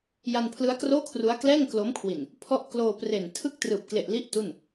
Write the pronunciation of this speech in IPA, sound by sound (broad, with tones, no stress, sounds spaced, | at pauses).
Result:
j a˧ n pʰ l ɯ˦˥ a̯ k r oː˥˩ kʰ r u˦˥ a̯ k l ɛː˥˩ ŋ k l o˦˥ m kʰ w i˨˩ n | pʰ ɔ˦˥ ʔ k l oː˧ p r e˨˩ n tʰ ɯ˥˩ k̚ t r ɯː˨˩ p̚ k l e˨˩ ʔ l i˦˥ ʔ t u˥˩ n